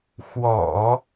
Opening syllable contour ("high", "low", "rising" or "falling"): low